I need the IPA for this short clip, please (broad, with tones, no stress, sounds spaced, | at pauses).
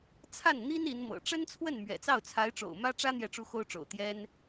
t͡sʰ a˥˩ n n̪ i˥ n i˧˥ n m ɤ̰˨˩ ʈ͡ʂ ə˥ n t͡sʰ w ə˥˩ n m ɥ ɛ̰˨˩ t͡s ɑ˥˩ ʊ̯ t͡sʰ a˧˥ ɪ̯ ʈ͡ʂ o̰˨˩ ʊ̯ m ä˥ ʈ͡ʂ ä˥ n̪ j ɛ˥˩ ʈ͡ʂ u˥ x o˥ ʊ̯ ʈ͡ʂ o̰˨˩ ʊ̯ t̪ j ɛ˥ n